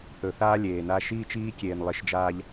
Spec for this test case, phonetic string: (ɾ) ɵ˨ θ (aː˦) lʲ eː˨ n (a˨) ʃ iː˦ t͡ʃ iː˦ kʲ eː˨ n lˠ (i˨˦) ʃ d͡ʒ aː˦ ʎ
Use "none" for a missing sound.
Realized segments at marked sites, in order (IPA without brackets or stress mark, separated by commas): θ, aː˦, a˦, i˨˦